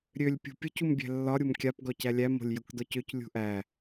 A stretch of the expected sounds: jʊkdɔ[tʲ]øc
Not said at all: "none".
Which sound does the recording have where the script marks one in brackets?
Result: c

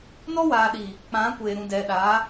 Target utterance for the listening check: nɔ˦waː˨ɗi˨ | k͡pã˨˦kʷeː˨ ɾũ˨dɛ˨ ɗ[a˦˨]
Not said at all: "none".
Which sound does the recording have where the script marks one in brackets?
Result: a˨˦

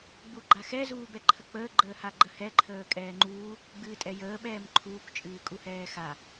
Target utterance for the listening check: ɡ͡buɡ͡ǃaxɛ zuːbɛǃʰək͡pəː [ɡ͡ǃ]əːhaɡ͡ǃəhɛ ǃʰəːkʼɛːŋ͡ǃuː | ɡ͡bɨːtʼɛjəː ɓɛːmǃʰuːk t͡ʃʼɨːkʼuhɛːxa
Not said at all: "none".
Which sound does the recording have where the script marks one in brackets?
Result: ɡ͡ǃ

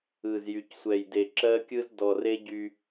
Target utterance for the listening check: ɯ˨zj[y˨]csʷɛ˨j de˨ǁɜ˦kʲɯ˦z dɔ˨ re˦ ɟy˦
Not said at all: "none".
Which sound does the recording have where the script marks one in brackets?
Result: y˨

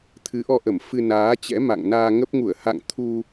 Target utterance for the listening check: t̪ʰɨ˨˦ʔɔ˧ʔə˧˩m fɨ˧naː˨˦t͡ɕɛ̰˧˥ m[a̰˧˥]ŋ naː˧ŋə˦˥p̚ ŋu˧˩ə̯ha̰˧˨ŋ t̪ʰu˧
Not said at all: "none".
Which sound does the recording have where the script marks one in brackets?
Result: a̰˧˨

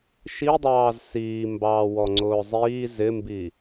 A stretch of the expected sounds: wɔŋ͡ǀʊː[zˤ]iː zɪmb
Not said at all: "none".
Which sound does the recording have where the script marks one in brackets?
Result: zˤ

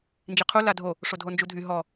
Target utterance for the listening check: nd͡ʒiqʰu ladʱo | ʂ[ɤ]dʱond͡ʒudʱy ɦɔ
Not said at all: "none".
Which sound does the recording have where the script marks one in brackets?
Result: o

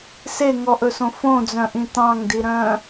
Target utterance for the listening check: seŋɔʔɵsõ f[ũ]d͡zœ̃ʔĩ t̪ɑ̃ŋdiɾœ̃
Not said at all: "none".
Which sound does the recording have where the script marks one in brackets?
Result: õ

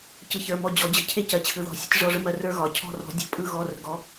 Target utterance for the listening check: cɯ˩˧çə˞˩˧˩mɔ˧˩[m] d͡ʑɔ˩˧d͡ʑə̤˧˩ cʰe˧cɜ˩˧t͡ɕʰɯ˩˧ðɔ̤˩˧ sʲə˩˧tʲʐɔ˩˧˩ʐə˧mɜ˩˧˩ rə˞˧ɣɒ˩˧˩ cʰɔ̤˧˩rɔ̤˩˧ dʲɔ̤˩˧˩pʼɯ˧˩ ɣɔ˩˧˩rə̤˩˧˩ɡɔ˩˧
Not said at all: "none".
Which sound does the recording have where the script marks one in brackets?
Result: none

